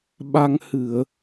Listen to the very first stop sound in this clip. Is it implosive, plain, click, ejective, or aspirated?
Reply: implosive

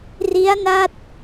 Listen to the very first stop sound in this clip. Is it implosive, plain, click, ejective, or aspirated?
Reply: plain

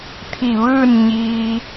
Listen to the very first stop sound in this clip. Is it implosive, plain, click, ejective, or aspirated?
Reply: aspirated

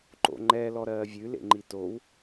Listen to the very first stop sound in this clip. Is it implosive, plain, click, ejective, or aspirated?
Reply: click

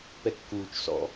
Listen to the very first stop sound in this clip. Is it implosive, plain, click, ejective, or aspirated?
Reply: plain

